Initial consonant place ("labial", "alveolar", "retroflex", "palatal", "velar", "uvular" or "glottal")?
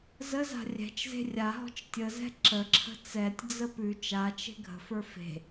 alveolar